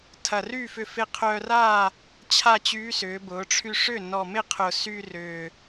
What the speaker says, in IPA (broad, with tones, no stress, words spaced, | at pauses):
tʰɐ˨˩ry˥˨fʏ˧ fɪ˧qʰœ˧ra˥˨ | t͡ɕʰa˥˨t͡ɕyː˧˥ sʏː˩˧bʊː˩˧ ʈ͡ʂʰy˧ʂʏ˥˨ nɔ˨˩mɪ˥˨qʰʊ˨˩ sy˧ rʏː˨˩